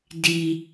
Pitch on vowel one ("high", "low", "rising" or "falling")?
low